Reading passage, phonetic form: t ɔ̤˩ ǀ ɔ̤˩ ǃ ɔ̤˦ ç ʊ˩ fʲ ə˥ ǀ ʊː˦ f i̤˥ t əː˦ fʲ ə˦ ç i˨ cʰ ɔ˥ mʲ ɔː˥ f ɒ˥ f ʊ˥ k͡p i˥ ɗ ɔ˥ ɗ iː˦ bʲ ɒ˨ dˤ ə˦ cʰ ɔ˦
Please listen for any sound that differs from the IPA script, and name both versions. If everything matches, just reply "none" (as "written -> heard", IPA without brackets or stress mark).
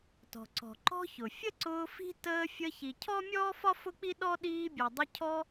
none